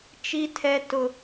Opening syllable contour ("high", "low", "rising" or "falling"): high